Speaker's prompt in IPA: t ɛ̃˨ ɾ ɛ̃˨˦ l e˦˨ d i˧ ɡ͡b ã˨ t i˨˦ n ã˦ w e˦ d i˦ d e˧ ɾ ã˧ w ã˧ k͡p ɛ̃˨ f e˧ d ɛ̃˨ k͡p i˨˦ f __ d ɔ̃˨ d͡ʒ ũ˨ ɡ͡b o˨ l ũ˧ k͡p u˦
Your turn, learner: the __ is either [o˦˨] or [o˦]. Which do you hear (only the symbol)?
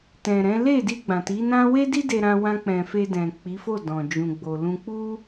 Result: o˦˨